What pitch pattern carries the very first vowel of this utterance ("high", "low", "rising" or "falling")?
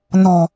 low